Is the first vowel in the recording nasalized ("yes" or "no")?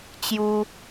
no